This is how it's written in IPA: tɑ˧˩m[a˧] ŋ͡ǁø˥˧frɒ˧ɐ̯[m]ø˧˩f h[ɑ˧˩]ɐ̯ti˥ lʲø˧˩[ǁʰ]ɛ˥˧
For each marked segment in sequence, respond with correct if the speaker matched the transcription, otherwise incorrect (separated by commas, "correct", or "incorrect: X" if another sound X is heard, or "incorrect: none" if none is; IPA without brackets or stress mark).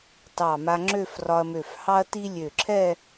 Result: correct, correct, incorrect: ɑ˥, correct